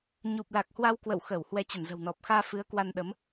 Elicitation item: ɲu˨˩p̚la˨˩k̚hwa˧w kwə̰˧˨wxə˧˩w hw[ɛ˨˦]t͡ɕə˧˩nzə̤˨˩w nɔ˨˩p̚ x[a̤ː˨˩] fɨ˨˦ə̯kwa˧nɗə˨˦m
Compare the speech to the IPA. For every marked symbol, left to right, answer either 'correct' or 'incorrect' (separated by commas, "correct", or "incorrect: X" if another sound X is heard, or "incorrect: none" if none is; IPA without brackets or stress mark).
correct, incorrect: aː˧